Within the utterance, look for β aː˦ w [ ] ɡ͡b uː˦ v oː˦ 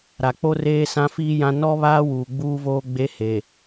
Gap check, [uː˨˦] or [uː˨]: uː˨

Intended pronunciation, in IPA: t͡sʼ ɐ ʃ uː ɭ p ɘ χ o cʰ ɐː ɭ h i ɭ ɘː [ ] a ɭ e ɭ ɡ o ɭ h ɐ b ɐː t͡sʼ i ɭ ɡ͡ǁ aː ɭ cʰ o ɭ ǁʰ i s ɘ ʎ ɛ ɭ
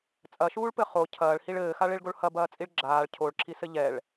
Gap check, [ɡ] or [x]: x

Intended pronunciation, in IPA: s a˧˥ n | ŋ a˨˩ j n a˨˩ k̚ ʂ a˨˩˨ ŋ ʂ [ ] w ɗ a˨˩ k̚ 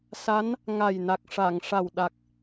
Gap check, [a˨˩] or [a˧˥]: a˨˩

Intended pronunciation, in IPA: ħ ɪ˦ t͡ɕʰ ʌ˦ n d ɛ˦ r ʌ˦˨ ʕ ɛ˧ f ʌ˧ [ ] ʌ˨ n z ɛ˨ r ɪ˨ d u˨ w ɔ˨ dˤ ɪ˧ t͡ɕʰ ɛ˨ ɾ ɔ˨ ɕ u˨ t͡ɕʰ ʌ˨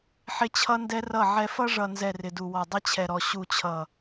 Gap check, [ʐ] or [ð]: ʐ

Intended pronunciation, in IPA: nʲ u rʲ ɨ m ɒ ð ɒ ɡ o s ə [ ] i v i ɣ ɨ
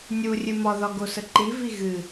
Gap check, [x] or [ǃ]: ǃ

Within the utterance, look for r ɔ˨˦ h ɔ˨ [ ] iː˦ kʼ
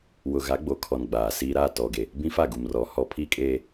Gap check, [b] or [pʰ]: pʰ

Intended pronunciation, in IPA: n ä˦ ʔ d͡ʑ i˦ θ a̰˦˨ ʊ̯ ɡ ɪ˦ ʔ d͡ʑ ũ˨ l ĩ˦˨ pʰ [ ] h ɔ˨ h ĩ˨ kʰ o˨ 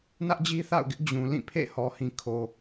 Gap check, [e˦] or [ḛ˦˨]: ḛ˦˨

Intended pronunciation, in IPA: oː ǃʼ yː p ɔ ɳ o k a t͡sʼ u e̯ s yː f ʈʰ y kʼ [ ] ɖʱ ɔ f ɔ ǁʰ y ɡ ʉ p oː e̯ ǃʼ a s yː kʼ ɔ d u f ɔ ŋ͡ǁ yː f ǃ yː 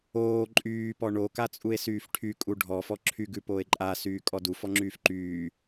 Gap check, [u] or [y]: u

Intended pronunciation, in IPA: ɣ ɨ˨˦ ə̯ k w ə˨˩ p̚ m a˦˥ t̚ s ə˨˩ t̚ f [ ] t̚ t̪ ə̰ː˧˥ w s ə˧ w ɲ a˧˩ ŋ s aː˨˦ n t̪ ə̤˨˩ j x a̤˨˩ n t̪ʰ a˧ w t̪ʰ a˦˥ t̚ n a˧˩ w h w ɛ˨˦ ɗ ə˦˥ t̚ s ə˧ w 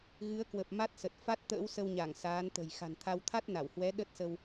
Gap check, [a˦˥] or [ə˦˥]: a˦˥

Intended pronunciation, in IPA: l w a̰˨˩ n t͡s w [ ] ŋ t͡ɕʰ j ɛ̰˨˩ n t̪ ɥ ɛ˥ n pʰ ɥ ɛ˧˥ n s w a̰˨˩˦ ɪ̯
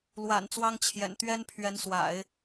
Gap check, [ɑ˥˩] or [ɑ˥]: ɑ˥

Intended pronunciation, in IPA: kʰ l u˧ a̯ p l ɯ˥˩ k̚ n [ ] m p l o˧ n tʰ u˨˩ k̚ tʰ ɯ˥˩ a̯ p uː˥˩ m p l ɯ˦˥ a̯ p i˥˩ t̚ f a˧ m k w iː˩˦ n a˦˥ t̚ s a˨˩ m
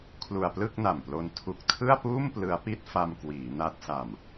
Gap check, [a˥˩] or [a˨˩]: a˨˩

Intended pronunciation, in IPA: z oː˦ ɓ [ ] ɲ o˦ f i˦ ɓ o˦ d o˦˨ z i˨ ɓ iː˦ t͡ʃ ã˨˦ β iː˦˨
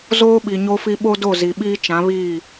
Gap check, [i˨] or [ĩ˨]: i˨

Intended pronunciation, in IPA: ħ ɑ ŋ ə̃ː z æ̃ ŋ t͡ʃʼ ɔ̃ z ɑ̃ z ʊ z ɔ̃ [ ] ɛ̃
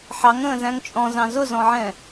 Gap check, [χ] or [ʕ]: ʕ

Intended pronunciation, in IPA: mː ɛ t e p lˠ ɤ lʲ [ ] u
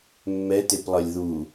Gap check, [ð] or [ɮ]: ð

